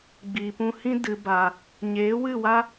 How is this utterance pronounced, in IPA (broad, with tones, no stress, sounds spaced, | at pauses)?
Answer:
ɡ͡b iː˨ p ũ˧ h ĩ˦ d ɨ˨ b a˨ | ɲ eː˨˦ w ɨ˦˨ w a˦